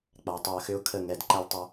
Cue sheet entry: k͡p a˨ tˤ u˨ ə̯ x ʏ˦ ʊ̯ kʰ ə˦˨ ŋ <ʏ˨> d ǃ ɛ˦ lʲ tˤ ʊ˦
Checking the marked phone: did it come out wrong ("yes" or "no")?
yes